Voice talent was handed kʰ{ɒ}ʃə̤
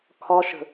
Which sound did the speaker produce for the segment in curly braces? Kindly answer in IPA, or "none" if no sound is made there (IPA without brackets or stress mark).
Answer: ɒ